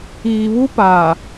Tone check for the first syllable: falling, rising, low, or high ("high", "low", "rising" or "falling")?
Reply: low